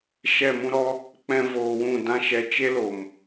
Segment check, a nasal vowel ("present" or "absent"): present